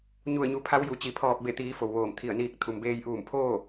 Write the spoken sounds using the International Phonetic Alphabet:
ɲ u˧˩ ə̯ ɲ u˩˧ pʰ a˧˥ w j u˩ t͡ɕ i˩ pʰ ɔː˧˩ p̚ b e˧˩ t̪ iː˩˧ f o˩ w ʋ oː˧˩ m t̪ʰ i˧˩ ə̯ n iː˧ k̚ t̪ʰ u˩ m b eː˧ j ʔ uː˧˩ m pʰ oː˥˨

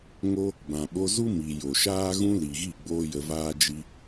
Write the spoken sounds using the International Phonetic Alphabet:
ŋ o˦ | b ã˨ ɓ o˧ z u˦ m i˨ j o˨ ʃ aː˦ ɣ ũ˦ l i˨ ɣ i˦˨ ɡ͡b oː˦ j ə˧ v aː˦ d͡ʒ i˧

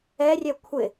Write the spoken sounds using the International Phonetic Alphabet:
ɛ rʲ ɛ kʷʰ ɪ

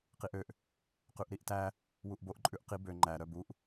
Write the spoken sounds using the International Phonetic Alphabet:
q i ʔ ø ʔ | q ʉ ʔ ɾ i ʔ t æ | w u ʔ b o ʔ ǃʼ ʉ ʔ q i b ø ŋ͡ǃ æ ɾ œ b u ʔ

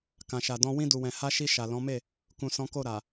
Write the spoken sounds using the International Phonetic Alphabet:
k ã˨ ʃ a˨ d ɔ̃˧ w ĩ˧ d u˨ w ɛ̃˨ h a˧ ʃ i˧ ʃ a˨ l ɔ̃˨˦ m e˦˨ | k ũ˨ s ɔ̃˨˦ k o˦˨ ɾ a˨

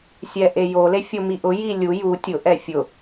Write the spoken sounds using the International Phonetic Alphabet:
sʲ ɛ ʔ e j o l e fʲ o m i ʔ ʊ j i lʲ u j u tʲ ʊ ʔ ɛ fʲ ʊ

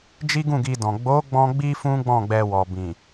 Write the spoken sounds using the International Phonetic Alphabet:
d͡ʒ i˦ ɡ ũ˦˨ ɡ i˧ d ɔ̃˨ ɡ͡b o˨˦ ɡ͡b ɔ̃˧ ɡ͡b i˧ f ũ˦ ɡ͡b ɔ̃˦˨ ɡ͡b ɛ˧ w ɔ˨ b ĩ˨

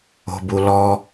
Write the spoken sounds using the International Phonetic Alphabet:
o̤ b u l ɔ

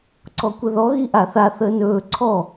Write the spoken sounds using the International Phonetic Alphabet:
ǀ ɔ kʷ ə ð ɔ ɣ i ʔ a θ a θ əː n ɵː ǀʰ ɔ

